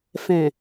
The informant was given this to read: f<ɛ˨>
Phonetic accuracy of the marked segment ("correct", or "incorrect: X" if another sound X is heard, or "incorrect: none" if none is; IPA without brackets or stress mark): incorrect: ɛ̃˨